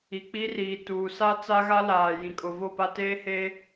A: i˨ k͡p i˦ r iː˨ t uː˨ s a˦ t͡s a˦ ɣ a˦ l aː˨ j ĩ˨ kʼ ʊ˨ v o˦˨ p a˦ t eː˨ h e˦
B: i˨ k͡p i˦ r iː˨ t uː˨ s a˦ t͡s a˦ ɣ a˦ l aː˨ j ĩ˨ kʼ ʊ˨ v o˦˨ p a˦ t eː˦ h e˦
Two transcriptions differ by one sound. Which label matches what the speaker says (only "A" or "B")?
B